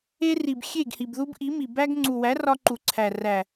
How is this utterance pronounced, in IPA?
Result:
e˦ri˨b xʲe˦˨ɡhi˨bðu˦b ʔi˨˦mi˨ bæ˦ɡ ŋ͡ǀu˨wæ˨˦rɒ˧ ǃu˨ǀʰæ˨ ræ˨

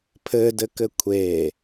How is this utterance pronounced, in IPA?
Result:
pʰɘdɘkɘ kʷʰe

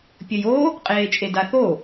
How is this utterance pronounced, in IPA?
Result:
pʲəjo | qʼeːt͡ʃʼedaθo

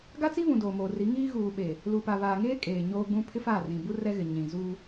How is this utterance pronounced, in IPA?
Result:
ɡa˦t͡si˦βũ˨ doː˨moː˨ri˨˦ŋiː˦ ɣuː˨ɓeː˨ | luː˨pa˨βaː˨ŋeː˦ kʼeː˨ɲoː˦ɡ͡bũ˦ pʰɪ˦faː˦˨rĩ˨bu˦ rɛ˦ɣɪ˨ ɲĩ˨zuː˦

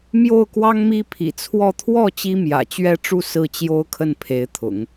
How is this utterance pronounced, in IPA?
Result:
mjo˥˩ʊ̯kwɑ˥ŋmi˥ pʰḭ˨˩t͡sʰwɔ˥˧ t̪ʰwɔ˥˩ t͡ɕi˥mjä̰˨˩t͡ɕɥɛ˥ʈ͡ʂu˥˧ sɹ̩˥˩ t͡ɕjo˥ʊ̯kʰə˥˩npʰe˧˥ɪ̯t̪ʰʊ̰˨˩˦ŋ

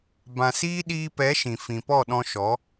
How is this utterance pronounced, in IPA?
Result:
bã˧siː˦ ɗiː˧pɛ˨˦ ʃĩ˨fĩ˨pɔ˦˨ɗɔ̃˧ ʃɔ˨˦

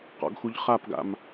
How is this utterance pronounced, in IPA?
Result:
qɔ̰ɡxuʎχapɡa̰m

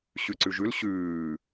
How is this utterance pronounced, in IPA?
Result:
ɕʉǀʉʒʉl ɕʉː

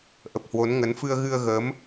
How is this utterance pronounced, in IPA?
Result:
ʔə˨˩p̚hwo˨˦nŋə˨˦n fɨ˧ə̯ɣɨ˧ə̯ɣəː˨˦m

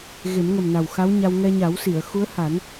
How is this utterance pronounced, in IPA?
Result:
ɣe˨˩˦mŋə˨˩mna˨˩w xa˧˥wɲa˧w ŋɛ˧ɲa˨˩˦wsi˨˩˨ə̯ xu˧˥ə̯ha˨˩˦n

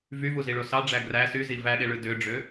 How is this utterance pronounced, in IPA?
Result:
vyvuziɭo sɑɖ͡ʐæ ɡræ syzi væɗeɭɯ døɖ͡ʐø

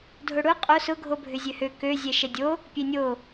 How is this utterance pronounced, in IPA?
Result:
dʱʊɽʊ qʼo sʊ ɡʱobʱʏzʲøhø kø zʲɛʃɛdʲo | pʲenʲo

